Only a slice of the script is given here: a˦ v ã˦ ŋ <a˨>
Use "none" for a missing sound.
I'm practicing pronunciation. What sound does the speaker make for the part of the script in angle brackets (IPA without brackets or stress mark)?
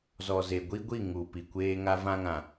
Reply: ã˨